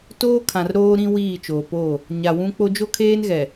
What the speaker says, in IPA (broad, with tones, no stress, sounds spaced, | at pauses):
t oː˦ kʰ ã˨ r ɾ oː˦ ɾ ĩ˦ w iː˦˨ t͡ʃ oː˨ p oː˦˨ | ɲ a˨ w ũ˦ k͡p o˦ d͡ʒ o˦ kʰ eː˦ n ɣ ɛ˨